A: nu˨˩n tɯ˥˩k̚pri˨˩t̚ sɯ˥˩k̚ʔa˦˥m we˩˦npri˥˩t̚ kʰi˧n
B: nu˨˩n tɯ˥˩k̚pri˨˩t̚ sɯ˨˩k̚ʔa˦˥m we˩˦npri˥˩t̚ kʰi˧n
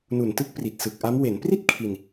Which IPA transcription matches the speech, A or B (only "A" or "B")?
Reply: B